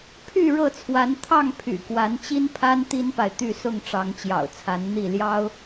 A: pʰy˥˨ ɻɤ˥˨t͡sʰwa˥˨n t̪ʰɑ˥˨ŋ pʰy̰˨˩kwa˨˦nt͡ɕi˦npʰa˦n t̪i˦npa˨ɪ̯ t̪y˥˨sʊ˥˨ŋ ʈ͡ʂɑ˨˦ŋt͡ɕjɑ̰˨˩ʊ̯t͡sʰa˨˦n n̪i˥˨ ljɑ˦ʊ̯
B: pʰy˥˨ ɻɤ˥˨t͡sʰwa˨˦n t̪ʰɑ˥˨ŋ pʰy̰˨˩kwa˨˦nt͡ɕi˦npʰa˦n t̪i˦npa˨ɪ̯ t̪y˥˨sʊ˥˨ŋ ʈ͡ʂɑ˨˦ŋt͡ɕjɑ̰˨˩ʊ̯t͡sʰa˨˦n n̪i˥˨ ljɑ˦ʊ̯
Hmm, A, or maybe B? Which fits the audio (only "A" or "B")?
B